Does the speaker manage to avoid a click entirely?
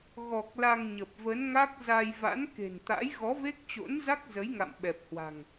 yes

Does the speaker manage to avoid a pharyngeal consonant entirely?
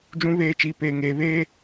yes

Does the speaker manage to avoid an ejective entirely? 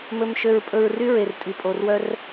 no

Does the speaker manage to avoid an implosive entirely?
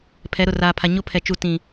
yes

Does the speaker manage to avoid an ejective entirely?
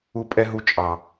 no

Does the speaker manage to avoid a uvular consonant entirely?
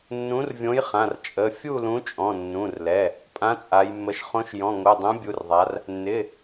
no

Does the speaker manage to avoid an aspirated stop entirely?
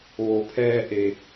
no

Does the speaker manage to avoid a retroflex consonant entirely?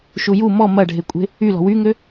no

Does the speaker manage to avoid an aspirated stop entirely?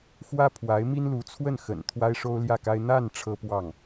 no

